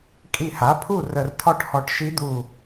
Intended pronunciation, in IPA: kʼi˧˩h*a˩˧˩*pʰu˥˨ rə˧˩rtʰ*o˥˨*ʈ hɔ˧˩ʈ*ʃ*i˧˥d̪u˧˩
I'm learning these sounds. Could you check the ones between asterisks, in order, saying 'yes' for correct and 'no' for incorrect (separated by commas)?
no, no, yes